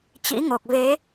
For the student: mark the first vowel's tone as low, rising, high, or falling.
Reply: rising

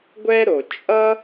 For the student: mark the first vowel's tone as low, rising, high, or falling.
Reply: high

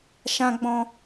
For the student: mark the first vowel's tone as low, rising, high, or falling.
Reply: high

